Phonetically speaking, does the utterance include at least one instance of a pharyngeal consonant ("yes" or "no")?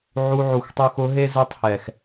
yes